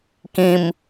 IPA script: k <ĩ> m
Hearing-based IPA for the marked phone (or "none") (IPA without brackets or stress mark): ĩ